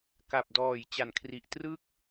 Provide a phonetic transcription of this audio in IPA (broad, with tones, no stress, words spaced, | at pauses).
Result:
ka˨˩p̚dɔː˨˩j t͡ɕa˨˩nkʰri˨˩ʔ trɯ˥˩k̚